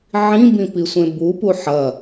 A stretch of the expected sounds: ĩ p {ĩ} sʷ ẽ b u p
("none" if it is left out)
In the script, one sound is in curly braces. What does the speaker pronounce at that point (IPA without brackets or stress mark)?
i